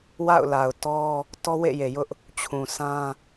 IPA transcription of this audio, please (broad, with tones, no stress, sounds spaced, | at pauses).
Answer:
w a̰˦˨ ʊ̯ l a˨ ʊ̯ t ɔ˦ | t ɔ˦ w ḛ˦˨ j e˨ j ʊ˦ ʔ | t͡ɕʰ ũ˨ sʰ ã˦